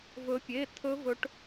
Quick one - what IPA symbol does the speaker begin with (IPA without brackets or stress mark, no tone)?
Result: v